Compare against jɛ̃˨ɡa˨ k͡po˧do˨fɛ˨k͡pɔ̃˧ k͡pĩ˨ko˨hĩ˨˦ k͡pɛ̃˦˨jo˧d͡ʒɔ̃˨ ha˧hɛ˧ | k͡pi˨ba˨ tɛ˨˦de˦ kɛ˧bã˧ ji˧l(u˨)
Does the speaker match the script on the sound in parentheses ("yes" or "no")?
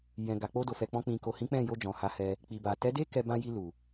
yes